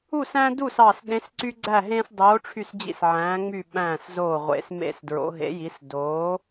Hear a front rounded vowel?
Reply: yes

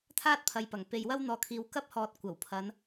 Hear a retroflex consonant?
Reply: no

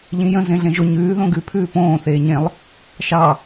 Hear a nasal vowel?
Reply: yes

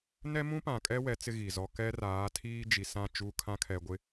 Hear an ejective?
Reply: yes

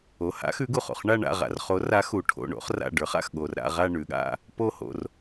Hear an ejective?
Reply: no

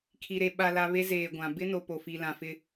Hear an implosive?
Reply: yes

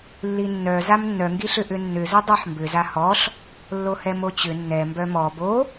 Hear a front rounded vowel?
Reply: yes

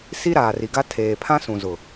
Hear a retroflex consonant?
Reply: no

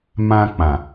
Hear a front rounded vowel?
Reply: no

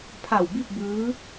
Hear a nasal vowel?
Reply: no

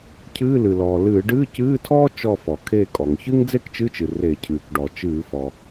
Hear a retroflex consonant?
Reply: yes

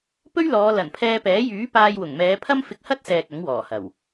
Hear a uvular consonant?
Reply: no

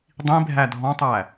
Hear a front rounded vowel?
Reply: no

